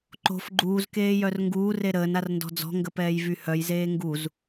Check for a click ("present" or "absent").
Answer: present